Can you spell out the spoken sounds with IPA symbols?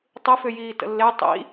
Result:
tˤɪfʏ jiːtə̰lːe tˤḭ

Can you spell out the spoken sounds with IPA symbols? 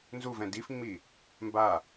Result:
nzuvɛ̃ difŋ͡mi | mba

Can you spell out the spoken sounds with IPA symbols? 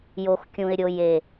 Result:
jo˧x kʲũ˨ɪ̯ɾʲo˨j e˨

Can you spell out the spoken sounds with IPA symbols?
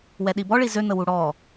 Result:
wɛɗibɔɭi zøn̪əwu ɽɔ

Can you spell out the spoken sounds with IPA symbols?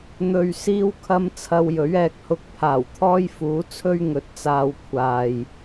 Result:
n̪ɵ˨ɥ siː˥wkʰɐ˥m t͡sʰɐ˧w jɵ˨˥ɥɛː˨k̚hʊ˧k̚ pʰaː˨˩wt̪ʰɔː˥jfuː˨˥t͡sʰɵ˥ɥ ŋɵ˨˥t̚t͡saː˧wkʷʰaː˨j

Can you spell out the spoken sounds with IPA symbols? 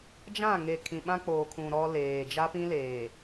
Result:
d͡ʒã˦˨ŋe˨ kʰĩ˨ɓã˦ k͡poː˨kʰũ˨ ɾɔ˦leː˨ d͡ʒa˦pĩ˦leː˨

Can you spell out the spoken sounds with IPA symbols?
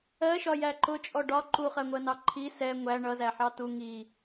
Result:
ɜʃɒ jæǃʊ t͡ʃʼɔɖɒ ǃuχɜŋʷɜnɑ ǃʰi sɛ ŋʷæ ɳʌzæħɑ tu ŋi

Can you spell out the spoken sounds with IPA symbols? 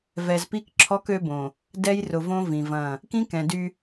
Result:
vɛ˨zpi˦kǁʰɔ˦k ø˦bõ˨ | dɛ˦jrʊ˨võ˦ vĩ˨vɐ̃˦˨ | kĩ˦kɛ̃˨dy˦

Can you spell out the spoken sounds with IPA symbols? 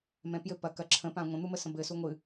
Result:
mɛ̃pjɘ pɐ kɐ ǁʰə̃pã ŋʷə̃n̪umə sə̃bɘsu ŋʷɨ

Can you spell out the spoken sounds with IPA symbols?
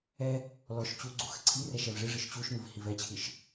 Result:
ɛ | lɔʃ t͡ɕu ɡ͡ǀuxəǀʰirɛʃ ɛvʐɨʐɨʃ t͡ɕuʃmɨv hivɛt͡ɕʰɨʃ

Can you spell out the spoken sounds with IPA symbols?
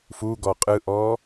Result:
fuɡɔ qʼɯʔɔː

